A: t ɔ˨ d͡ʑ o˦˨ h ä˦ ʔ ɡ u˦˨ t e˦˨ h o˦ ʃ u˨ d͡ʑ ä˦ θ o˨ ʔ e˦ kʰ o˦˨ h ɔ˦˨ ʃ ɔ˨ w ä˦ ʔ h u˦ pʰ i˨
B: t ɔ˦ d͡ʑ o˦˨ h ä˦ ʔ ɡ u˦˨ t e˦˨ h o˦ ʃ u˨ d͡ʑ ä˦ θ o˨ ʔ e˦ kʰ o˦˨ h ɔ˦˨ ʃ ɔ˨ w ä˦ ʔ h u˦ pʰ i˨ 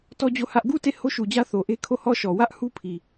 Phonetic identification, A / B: B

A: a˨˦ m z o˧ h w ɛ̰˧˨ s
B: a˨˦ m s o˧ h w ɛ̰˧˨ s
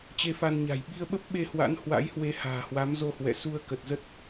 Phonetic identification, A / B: A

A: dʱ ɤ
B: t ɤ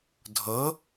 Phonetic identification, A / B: A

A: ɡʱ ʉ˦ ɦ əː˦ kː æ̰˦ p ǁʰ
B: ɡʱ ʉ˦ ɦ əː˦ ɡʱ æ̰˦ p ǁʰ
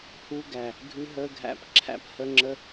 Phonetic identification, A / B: B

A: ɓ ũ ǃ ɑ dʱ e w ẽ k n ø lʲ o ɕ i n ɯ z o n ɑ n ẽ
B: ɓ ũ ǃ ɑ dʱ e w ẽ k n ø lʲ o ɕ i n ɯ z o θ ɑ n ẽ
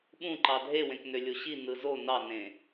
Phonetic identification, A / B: A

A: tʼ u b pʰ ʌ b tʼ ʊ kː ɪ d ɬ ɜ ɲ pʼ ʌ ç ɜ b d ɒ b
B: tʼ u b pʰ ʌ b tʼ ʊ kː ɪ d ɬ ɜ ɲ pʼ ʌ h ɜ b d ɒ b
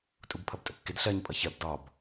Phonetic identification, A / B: A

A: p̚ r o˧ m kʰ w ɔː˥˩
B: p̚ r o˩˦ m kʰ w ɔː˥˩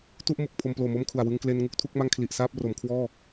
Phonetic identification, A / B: B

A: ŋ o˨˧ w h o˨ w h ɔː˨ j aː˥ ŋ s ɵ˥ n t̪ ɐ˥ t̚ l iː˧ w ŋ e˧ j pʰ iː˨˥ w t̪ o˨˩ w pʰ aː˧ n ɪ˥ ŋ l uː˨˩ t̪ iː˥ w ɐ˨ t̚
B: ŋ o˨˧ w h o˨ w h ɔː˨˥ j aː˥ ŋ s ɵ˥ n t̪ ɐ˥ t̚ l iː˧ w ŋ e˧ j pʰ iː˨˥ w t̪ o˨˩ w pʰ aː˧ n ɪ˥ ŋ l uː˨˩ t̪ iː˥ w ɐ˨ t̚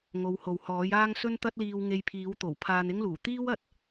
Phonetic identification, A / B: B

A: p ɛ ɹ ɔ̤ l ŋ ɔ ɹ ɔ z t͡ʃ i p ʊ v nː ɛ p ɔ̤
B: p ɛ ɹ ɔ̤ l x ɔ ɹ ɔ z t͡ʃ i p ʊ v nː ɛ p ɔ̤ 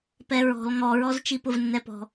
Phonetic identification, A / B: A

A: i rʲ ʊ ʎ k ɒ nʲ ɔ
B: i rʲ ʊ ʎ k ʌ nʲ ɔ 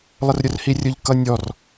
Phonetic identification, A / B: B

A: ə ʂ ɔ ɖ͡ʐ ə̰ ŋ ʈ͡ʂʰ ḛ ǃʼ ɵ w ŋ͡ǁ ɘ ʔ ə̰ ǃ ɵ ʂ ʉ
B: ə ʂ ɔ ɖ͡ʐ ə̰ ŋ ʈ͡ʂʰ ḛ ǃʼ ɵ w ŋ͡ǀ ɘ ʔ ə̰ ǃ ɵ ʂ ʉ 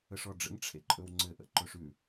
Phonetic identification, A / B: B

